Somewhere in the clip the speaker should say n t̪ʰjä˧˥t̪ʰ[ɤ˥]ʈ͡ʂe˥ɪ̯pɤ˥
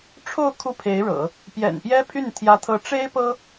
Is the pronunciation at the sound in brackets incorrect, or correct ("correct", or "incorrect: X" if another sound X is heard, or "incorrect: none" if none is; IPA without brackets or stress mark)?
incorrect: ɤ˧˥